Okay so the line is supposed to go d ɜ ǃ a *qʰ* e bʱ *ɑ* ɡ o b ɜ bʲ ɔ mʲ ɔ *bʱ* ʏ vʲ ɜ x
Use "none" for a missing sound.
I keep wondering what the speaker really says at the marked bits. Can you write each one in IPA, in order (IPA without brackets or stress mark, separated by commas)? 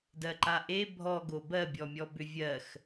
ʔ, ɔ, b